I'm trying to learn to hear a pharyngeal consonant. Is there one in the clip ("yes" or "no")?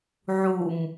yes